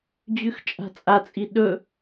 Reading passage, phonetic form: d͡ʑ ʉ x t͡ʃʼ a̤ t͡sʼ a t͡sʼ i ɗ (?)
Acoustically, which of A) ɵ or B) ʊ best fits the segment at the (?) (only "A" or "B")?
A